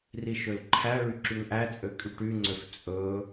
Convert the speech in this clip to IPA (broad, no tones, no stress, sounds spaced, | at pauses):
r i ʃ ø l ǃʰ æ ɭ y ǁ y ŋ ʔ æ t͡sʼ ø kʼ y ʈ y ŋ͡ǀ ø f t͡sʼ ɵ